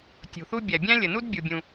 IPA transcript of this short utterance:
tʲ ṳ˩ θ u˥ bʲ æ˩ bʲ æ̃˥ lʲ ə˩ n u˥ d bʲ u˩ bʲ ũ˩

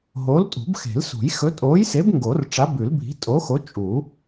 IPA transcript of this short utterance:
ɦ oː˨˥ l tʼ ṳ˨˩˦ b x e̤˨˩˦ l s ṳ˨˩˦ j x ɵ˨˥ tʼ oː˨˥ j s e˨˥ b ŋ ɡ o˨˩˦ r ʈ͡ʂ a˨˥ b ʉ˨˩˦ l bʱ i̤˨˥ tʼ oː˨˥ x o˨˥ t͡ʃʼ u˨˩˦

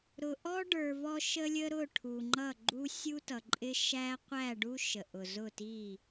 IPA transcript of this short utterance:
ɾ ʊ˨ ʔ ɔ˦ ɖ ə˞˨ v ɔ˦ ʃ ə˦ lʲ ə˦ ɾ ʊ˦˨ ʈʰ u˨ ŋ͡ǃ ʌ˦˨ ɡ͡ǃ u˦ sʲ u˦ t ʌ˨ ǃʼ ɪ˦ ʃ æ˦ qʷ æ˦˨ ɖ u˦ ʃ ə˨ ʔ ʊ˨ z ʊ˦˨ t i˦˨

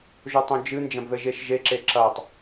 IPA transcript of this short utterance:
ʒ o tˤ õ d͡ʒ ɨ n d͡ʒ ɐ̃ b ð ɘ ʒ e ʃ ʒ e ǁ e ǁ ɐ tˤ

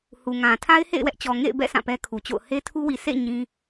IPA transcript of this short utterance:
h u˨ ŋ ã˨ tʰ a˦ ɪ̯ h ḛ˦˨ ɪ̯ w ɛ˦ ʔ t͡ɕ ɔ˨ ŋ ḛ˦˨ ɪ̯ b ɛ̰˦˨ sʰ ã˦˨ p ɛ˦ kʰ u˨ t͡ɕ o̰˦˨ ʊ̯ h e˦ tʰ u˦ w i˨ s ḛ˦˨ ɲ ĩ˦

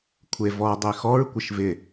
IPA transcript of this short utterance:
kʷʰ e v ɔ dˤ e x ɔ ɹ kʷ ɪ ʃ v ɪ

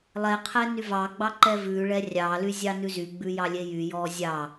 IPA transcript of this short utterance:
lˠ ɛ qʰ ɛ n y v ɑ ɡ͡b ɑ ǃ ɛ v ʉ ɭ ɛ rʲ ɑ l y zʲ ɑ n ʉ z y ɡ͡b ʉ j ɑ lʲ e j y j ɔ zʲ ɑ

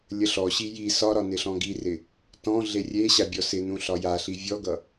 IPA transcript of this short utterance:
lʲ ə ɬ ɔ ɕ i j i s ɒ ɾ ɒ n ɪ ɬ ɔ̃ ɡ i r ɪ | t ɔ̃ ɮ e rʲ e ɕ a bʲ ɔ s ɪ n ũ ɬ ɒ j a ɬ i vʲ ɔ ɡ ʌ

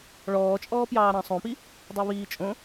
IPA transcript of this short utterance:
ɭ ɔː t͡ʃʼ ɔː p j ɑː ɾ ɑ̃ sˤ õ p i | dˤ o β iː t͡ʃʼ õ

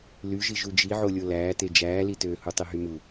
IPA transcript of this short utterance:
l y ʒ i ʒ u d͡ʒ i ʕ o lʲ o l æː t e d͡ʒ æː l i t øː h u tˤ i ɦ y m u

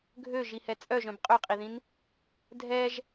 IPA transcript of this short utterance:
ɡʱ ø ʒ i h ɛ t͡sʼ œ ʒ œ̃ b qʼ ø qʼ i ð ĩ n | dʱ ɛ ʒ

